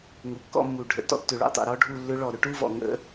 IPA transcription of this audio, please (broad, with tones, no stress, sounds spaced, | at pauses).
ŋ u˩˥ kː ɔ̰˥˧ mː u˨˩ ɖʱ ə̰˨˩ t ɔ̰˦˥ tː ʏ˨˩ ɭ ṵ˥˧ tˤ ṵ˨˩ ɾ ɔ˦˥ ɖʱ u˥˧ lː ʏ˦˥ ɭ ɔ˨˩ ɾ ʏ˥˧ ʈ u˥˧ v ɔ̰˨˩ ŋ ə̰˦˥